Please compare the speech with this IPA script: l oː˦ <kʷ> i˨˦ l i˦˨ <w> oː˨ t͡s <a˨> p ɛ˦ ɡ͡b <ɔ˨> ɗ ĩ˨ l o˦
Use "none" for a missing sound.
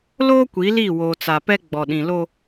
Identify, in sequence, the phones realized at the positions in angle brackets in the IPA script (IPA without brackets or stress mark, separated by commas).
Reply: kʷ, w, a˨, ɔ˨